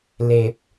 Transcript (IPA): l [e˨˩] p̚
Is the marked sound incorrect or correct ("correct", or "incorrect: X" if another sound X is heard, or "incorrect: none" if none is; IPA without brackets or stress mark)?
correct